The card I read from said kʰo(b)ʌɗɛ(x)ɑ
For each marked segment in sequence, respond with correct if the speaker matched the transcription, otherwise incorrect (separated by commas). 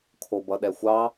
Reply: correct, incorrect